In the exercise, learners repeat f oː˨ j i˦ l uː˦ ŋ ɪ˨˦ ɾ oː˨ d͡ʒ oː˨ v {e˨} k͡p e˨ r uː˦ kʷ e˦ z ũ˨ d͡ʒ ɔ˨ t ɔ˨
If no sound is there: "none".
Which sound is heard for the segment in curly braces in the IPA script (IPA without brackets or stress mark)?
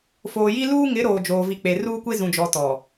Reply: i˨